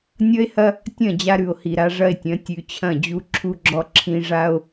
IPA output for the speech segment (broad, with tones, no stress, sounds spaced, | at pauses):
nʲ ʌ˦ e̯ h ɐ˦ | tʲ ɐ̃˦˨ d͡ʑ a˦ ɾ ʉ˨ o̯ h i˨ ɾ a˦ ʐ ɐ˦ e̯ tʲ ɐ̃˨˦ tʲ ʉ˨ t͡ɕʰ ɐ̃˦˨ d͡ʑ u˦ ǁʰ u˦ ɡ͡ǁ ɔ˦ ǁʰ ĩ˦ ʐ a˦ o̯